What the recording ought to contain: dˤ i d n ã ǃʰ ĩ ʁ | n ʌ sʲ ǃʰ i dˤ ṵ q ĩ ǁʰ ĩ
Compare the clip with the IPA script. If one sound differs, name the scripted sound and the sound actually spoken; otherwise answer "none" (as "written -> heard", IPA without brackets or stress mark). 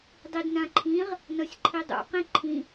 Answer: ǁʰ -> ǃʰ